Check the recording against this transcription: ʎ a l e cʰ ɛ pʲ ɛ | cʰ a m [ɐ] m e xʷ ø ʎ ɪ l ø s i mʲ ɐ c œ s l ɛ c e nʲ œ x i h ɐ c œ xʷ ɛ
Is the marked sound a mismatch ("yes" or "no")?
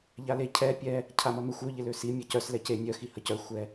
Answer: no